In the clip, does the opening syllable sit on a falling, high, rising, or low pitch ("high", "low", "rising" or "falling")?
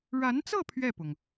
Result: rising